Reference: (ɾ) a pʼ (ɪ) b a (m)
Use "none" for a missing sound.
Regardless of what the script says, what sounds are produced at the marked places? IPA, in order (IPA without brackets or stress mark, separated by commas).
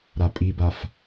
ɾ, i, f